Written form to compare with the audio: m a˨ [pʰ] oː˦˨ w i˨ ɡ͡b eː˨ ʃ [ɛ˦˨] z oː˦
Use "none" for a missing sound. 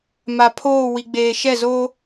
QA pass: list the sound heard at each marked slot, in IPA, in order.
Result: pʰ, ɛ˦˨

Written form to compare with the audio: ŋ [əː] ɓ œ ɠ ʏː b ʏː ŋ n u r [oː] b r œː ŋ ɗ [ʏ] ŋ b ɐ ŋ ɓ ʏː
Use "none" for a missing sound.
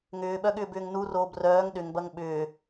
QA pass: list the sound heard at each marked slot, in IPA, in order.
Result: ʏː, oː, ʏ

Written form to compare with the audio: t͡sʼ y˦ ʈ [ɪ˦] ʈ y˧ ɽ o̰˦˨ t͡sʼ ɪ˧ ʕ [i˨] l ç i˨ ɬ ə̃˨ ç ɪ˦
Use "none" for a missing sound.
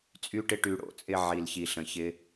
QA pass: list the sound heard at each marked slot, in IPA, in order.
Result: ɪ˦, i˨

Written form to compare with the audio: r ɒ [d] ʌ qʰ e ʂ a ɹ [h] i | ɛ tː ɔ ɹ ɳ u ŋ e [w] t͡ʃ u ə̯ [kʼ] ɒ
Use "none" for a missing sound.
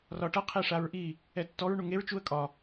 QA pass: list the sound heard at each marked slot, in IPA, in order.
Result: ʈ, ʔ, ɹ, kʼ

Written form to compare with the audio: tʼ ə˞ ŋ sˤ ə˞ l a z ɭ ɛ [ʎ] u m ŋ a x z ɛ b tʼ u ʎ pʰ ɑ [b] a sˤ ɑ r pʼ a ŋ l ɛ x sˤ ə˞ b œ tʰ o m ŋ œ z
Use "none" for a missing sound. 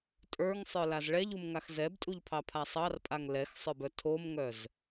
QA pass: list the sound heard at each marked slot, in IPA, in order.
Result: ʎ, pʰ

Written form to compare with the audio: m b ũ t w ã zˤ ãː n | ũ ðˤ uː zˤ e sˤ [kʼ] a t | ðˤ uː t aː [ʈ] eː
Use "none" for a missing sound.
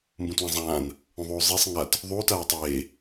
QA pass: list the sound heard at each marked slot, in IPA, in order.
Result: ŋ, tˤ

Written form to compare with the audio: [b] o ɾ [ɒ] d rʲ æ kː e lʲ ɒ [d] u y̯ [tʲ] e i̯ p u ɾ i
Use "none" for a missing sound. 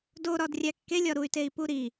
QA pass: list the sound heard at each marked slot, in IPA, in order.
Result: d, ɒ, ɾ, t

